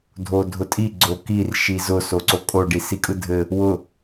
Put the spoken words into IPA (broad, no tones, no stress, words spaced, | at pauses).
dʱodʱʊtʼi ɡ͡ǀokir ʃizʊ soǀokʼo ɖisikʼɯdʱɘ | wʊ